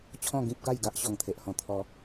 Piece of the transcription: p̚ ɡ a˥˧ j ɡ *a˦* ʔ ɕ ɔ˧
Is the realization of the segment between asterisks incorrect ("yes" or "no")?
no